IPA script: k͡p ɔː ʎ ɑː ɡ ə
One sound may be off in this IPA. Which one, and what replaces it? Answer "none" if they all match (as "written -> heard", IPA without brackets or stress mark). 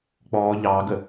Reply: none